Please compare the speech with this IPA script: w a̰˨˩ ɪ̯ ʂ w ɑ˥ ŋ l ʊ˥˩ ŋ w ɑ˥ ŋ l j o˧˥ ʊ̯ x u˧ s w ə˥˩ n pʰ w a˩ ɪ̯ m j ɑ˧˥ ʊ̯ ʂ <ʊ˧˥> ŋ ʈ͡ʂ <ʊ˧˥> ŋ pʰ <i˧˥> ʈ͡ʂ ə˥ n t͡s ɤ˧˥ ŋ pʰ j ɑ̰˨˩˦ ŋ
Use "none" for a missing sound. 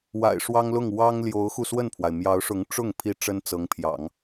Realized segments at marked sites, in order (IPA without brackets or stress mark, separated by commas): ʊ˧˥, ʊ˥˩, i˧˥